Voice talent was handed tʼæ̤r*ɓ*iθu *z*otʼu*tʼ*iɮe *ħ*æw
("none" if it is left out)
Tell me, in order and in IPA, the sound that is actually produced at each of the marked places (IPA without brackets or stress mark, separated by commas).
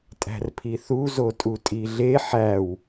pʰ, z, tʼ, ħ